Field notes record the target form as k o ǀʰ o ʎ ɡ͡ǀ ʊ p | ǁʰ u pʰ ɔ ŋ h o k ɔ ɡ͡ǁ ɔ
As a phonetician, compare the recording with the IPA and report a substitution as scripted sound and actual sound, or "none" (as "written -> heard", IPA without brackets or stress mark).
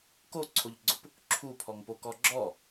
h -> p